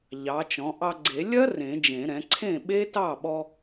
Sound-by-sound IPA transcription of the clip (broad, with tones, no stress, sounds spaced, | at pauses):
ʎ ɑ˩˥ t͡ʃ ɔ̃˩˥ ʔ ɑ˧ ɡ͡ǀ e˨˩˦ lʲ ɐ˦˥ r ẽ˨˩˦ d͡ʒ ẽ˨˩˦ ɾ ɛ̃˩˥ ǀʰ ẽ˥˩ ɓ e˦˥ t ɑ˥˩ ɓ ɔ˧